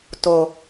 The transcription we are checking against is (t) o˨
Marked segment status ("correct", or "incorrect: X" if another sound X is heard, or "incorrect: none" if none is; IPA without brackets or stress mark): correct